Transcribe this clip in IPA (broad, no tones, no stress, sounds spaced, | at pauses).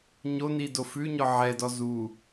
ɲ o n i d o f ʉ ɲ ɔ ʕ ɛ d ɔ z u